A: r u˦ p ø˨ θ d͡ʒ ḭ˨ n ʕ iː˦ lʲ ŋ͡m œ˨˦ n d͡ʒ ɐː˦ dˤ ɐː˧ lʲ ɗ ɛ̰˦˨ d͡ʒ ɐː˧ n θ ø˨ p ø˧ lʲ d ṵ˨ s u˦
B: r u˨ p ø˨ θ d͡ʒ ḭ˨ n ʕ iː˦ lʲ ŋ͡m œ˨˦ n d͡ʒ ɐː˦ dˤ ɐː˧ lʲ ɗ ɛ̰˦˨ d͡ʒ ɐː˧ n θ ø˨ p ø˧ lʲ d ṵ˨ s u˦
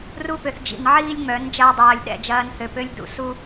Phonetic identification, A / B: A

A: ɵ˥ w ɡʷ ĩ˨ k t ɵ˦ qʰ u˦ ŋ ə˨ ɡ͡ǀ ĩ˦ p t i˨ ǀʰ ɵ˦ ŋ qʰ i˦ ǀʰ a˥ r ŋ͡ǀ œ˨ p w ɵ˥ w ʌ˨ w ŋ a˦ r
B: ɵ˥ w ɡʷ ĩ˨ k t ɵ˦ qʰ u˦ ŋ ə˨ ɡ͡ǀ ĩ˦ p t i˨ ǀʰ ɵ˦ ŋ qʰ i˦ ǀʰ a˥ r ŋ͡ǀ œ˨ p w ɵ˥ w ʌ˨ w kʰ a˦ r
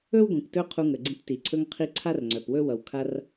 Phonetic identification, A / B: B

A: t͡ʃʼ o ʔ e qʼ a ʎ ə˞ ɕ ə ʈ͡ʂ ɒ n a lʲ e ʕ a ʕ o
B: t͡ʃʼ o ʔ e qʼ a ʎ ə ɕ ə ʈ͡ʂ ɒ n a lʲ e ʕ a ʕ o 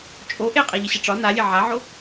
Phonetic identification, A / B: B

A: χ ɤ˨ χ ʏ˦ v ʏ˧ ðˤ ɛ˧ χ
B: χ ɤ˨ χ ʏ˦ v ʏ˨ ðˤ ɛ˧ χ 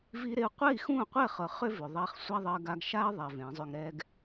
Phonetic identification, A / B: B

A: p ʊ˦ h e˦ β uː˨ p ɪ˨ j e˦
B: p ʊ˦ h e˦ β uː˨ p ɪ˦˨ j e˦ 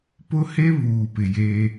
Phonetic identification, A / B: A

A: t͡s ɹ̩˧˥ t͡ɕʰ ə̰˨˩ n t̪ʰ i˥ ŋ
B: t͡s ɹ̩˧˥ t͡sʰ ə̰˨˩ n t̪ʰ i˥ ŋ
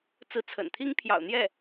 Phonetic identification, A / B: B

